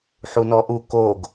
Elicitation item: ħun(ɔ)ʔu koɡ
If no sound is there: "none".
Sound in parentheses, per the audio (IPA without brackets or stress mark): ɔ